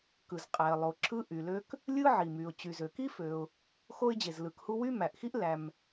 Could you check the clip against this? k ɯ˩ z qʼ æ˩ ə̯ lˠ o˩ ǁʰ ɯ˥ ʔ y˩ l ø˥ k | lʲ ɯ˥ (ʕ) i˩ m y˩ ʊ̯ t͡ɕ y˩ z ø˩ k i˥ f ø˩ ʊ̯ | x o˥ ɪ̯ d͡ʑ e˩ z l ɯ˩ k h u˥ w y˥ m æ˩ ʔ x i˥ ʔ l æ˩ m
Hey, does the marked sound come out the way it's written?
yes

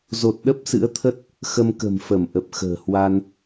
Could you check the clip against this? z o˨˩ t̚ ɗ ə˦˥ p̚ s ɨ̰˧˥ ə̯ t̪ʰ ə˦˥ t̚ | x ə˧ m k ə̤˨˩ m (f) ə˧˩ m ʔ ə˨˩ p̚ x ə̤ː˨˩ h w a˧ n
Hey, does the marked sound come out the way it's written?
yes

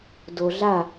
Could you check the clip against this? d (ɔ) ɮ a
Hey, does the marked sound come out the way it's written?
no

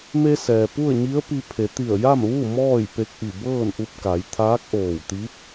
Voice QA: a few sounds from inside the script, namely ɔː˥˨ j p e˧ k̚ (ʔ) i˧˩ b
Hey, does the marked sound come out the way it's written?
yes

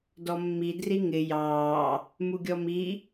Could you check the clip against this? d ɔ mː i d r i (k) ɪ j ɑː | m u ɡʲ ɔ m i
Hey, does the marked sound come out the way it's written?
no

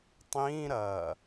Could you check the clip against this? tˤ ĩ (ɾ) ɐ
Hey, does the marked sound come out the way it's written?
yes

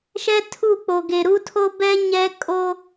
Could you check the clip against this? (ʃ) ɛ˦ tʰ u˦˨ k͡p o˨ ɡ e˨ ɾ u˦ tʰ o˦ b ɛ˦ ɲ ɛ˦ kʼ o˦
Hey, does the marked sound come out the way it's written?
yes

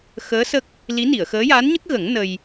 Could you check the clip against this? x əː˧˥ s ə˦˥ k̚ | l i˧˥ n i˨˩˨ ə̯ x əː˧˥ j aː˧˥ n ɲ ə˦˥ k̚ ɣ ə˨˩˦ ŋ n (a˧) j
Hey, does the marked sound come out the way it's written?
no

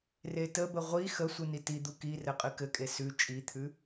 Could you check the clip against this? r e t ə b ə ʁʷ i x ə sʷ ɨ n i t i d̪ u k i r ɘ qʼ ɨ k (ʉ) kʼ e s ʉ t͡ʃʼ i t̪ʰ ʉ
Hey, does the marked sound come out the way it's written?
no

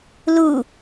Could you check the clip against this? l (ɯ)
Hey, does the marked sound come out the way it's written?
no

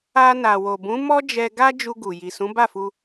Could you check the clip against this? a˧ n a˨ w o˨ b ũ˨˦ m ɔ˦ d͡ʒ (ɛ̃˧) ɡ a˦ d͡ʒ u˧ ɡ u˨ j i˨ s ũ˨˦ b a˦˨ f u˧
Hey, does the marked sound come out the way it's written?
no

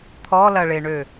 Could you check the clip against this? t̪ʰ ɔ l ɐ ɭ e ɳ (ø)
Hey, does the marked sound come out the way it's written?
yes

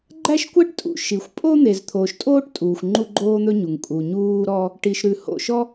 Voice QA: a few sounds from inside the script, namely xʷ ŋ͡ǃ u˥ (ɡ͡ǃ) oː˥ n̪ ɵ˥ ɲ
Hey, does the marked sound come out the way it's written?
yes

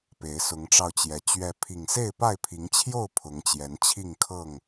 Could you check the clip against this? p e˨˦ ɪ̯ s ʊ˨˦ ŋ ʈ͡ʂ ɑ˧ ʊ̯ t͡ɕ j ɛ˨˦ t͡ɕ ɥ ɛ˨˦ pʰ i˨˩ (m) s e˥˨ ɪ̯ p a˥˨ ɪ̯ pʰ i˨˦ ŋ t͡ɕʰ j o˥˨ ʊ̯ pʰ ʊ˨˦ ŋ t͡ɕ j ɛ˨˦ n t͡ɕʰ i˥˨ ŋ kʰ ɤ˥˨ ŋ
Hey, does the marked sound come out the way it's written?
no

